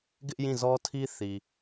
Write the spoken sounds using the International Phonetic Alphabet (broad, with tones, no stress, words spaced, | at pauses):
ɡɪ˦ʔ jĩ˦˨zɔ˦tʰi˦ θi˨